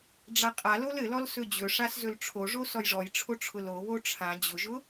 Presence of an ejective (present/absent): present